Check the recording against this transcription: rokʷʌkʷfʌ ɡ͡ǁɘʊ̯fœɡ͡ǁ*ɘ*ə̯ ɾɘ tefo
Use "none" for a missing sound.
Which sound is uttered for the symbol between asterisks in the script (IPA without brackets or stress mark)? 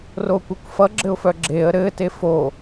e